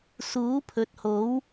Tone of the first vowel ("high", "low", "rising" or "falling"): rising